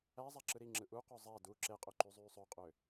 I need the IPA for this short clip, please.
æ zˤæǁɯɾiŋ͡ǁɯ ʔuqø zˤæ du ǁeqʼø ǃyzˤyːsˤøqʼø

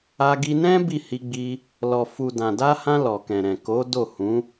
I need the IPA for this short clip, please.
a˧ɡi˧ nɛ̃˦ bi˦˨hi˧ɡ͡bi˧ | lɔ˨fu˨ dã˨da˧hã˧ lɔ˨kɛ̃˨ɾɛ̃˨ ko˨˦ do˦˨hũ˨˦

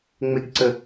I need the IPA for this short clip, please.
ŋ͡meɡǀə

